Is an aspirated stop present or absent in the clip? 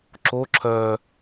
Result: present